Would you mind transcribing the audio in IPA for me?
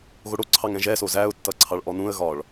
ɣ o ɽ o ǀʰ ɑ ŋ ɛ̃ ʒ ɛ s o z æ ʊ̯ tː ʌ ǀʰ ɑ ɭ ʔ ɔ n ũ ə̯ ɣ ɒ ɭ

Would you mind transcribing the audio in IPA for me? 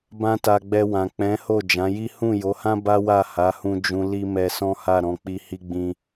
b ã˦ t a˧ ɡ͡b ɛ˧ w ã˨ k͡p ɛ̃˨˦ h o˦˨ d͡ʒ ã˨˦ j i˦ h ũ˦˨ j o˨˦ h ã˦ b a˦ w a˦˨ h a˨˦ h ũ˧ d͡ʒ ũ˧ l i˦ m ɛ˧ s ɔ̃˦ h a˦˨ ɾ ɔ̃˧ k͡p i˧ h i˦ ɡ͡b ĩ˦

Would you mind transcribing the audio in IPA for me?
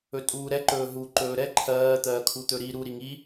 ɵ tʼ uː ɾ ɛ ǃ ɵː ɦ u ǃ ɵː ɾ ɛ ǃʰ ɜː t̪ ɜː kʰ u t̪ ɵ ɾ i ɾ u ɾ i ŋ i

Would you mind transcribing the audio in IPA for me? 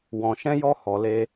w ɔ̃˨ ʃ ɛ̃˧ j ɔ˧ h ɔ˨ l e˧

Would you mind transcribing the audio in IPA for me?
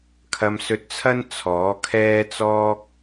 kʰ ɐ˧ m s ɵ˧ t̚ t͡sʰ ɐ˥ n t͡sʰ ɔː˨˥ kʰ ɛː˥ t͡s ɔː˥ k̚

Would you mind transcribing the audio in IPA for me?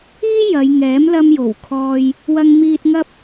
iː˥ j ɐ˨˧ j ŋ ɛː˨˥ m l ɐ˧ m j o˨˩ w kʰ ɔː˧ j | w ɐ˧ ŋ m iː˧ t̚ ŋ ɐ˥ p̚

